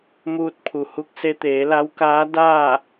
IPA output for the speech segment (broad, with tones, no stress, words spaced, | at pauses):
muː˧t̚pʰu˩hu˧k̚ se˧t̪eː˩˧la˧˥wkaː˧˥ daː˥˨